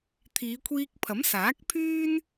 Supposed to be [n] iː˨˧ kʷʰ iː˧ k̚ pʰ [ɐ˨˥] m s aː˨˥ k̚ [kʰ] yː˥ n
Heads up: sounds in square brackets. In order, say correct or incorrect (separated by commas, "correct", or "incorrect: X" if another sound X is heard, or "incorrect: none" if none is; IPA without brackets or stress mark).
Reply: incorrect: t̪ʰ, correct, incorrect: pʰ